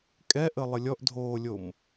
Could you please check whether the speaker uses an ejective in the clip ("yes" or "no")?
yes